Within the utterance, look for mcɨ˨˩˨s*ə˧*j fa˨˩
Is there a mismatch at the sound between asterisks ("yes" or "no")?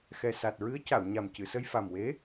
no